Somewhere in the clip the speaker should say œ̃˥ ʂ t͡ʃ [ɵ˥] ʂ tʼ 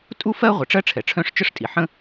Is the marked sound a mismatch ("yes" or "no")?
yes